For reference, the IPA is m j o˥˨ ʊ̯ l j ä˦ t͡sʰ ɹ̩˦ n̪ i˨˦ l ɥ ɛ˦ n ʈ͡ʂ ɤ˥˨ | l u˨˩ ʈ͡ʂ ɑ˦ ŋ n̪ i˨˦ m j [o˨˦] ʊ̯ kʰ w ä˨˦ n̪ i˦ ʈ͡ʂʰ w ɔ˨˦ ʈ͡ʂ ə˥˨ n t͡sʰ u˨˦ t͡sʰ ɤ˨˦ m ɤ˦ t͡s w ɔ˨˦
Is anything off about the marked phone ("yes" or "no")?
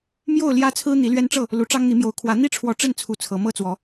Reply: no